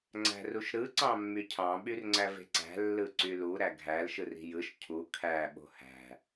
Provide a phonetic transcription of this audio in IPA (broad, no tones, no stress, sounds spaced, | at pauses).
ŋ͡ǀ æ̤ r u ʃ ɾ ɯ ǀ ɑ̃ mː y cʰ ɑ̃ ɓ y r ŋ͡ǀ æ v e̤ ǀ æ̤ lː ɯ ǀ y l u ɾ æ ɡʱ æ l ʃ ɯ r i̤ j ɯ ʃ cʰ u kʰ æ ɓ o̤ h æ̤